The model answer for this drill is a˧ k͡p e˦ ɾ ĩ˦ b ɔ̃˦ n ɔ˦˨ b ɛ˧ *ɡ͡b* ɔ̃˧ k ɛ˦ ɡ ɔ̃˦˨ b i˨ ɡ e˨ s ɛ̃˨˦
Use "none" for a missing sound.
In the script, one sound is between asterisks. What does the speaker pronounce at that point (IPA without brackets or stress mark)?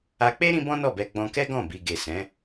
ɡ͡b